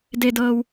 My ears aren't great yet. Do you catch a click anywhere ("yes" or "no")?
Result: no